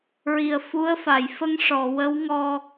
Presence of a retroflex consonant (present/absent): present